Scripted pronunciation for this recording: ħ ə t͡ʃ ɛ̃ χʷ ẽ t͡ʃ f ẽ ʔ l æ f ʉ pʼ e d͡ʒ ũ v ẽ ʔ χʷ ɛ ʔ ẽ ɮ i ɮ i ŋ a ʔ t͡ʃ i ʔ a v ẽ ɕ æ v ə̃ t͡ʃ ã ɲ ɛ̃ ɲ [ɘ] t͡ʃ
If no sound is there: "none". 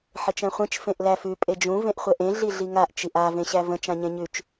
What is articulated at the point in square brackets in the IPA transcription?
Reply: ʉ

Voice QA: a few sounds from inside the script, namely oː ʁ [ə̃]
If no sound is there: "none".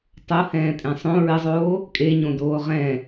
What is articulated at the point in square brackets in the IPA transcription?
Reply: ɛ̃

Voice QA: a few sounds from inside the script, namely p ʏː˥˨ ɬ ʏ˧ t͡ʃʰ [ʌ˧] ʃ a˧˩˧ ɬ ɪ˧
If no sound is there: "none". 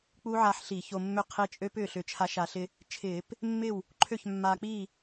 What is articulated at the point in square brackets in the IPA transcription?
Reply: a˧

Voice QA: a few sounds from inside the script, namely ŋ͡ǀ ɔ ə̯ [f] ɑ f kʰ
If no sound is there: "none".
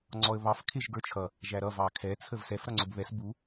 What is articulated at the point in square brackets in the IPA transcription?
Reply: β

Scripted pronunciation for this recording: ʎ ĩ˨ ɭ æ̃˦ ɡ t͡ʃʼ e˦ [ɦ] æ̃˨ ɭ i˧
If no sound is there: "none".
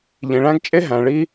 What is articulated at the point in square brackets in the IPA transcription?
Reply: ɦ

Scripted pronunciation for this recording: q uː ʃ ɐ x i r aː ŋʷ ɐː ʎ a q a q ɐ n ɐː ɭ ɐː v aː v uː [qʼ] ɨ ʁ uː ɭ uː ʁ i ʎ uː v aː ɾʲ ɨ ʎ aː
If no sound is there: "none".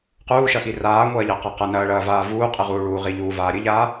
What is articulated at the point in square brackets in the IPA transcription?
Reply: qʼ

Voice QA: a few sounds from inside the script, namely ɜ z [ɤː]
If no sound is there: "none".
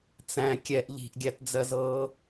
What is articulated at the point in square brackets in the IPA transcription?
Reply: ɤː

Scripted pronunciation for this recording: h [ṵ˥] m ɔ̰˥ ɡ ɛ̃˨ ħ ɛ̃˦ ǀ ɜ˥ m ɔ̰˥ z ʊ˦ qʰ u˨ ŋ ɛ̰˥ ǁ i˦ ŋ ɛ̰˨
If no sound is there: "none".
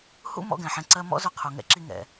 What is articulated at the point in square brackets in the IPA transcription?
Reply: ṵ˥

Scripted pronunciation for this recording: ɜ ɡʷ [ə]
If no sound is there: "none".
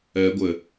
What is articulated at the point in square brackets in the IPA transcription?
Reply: ə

